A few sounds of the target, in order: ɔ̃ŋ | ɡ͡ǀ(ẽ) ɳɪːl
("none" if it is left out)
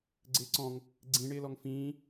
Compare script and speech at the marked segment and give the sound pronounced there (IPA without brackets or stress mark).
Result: ĩ